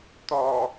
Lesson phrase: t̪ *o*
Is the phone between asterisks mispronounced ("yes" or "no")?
yes